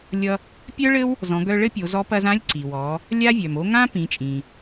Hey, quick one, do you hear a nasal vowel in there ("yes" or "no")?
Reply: yes